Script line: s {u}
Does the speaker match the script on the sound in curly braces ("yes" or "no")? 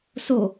no